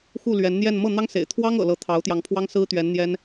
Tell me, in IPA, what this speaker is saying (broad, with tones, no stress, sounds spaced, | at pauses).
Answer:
x u˥˩ l ɥ ɛ˧˥ n n̪ j ɛ˥˧ n m ɤ˥˩ n̪ ɑ˥ ŋ s ḛ˨˩ ɪ̯ t̪ʰ w ɑ˥ ŋ ɤ̰˨˩ l ɤ˧˥ t̪ʰ ɑ˧˥ ʊ̯ t̪ j ɑ˧˥ ŋ pʰ w ɑ˥ ŋ s ɹ̩˥ t̪ ɥ ɛ˧˥ n n̪ j ɛ˥ n